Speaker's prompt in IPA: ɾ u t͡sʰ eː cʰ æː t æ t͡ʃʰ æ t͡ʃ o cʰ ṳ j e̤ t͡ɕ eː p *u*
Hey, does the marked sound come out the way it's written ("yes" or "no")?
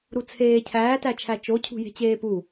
yes